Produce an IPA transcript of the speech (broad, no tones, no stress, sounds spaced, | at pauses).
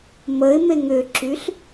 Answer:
m ə ɪ̯ m e ŋ ʏ ǁ y ɬ